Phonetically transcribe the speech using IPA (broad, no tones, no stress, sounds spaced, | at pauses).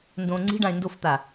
n d õ ŋ͡ǀ i̤ ɖ ã ɪ̯ n d o f t̪ a